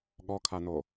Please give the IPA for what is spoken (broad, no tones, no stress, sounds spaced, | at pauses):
ɠ ɔ kʰ a n o